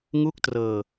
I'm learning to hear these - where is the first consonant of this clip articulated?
velum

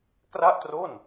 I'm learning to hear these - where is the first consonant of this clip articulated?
velum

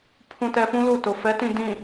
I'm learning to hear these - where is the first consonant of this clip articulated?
lips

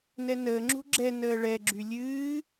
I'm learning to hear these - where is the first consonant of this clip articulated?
tongue tip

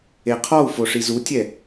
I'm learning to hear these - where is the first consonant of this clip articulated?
uvula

